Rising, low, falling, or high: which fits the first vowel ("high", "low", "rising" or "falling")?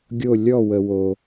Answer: falling